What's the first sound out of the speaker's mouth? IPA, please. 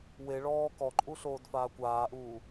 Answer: w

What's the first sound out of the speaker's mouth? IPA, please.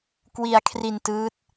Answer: k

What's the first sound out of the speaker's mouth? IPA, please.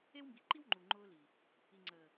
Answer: e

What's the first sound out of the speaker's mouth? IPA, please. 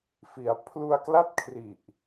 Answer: f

